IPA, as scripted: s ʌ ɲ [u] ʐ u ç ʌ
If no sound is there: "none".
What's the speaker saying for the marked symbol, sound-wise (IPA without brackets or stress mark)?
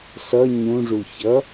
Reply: ũ